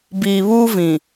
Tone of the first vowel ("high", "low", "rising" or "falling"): low